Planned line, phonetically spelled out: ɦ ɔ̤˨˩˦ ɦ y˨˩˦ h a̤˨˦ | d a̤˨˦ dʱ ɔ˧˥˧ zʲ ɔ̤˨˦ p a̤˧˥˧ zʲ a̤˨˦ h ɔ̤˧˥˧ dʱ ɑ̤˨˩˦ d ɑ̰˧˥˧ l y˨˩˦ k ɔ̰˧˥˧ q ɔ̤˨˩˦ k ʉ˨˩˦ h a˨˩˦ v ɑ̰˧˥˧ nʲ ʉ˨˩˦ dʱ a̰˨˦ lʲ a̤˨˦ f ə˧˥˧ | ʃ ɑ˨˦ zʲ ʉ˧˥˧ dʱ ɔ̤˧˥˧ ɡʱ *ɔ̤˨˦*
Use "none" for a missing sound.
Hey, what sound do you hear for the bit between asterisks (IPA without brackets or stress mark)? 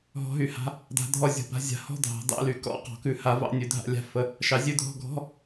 ɔ̤˧˥˧